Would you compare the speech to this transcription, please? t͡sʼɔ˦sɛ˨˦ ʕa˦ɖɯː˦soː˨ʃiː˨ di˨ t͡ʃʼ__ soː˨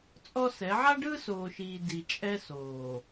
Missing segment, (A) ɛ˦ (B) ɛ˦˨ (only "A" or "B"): A